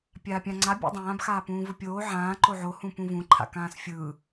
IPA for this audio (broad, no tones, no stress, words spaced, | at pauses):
pʲaːpʲãŋ͡ǀa bʲṵdˤãːb xaːpũːvɯpʲoː ʕãː ǃoʕo hũpũvũ ǃʰa̰kãːsfʲɯː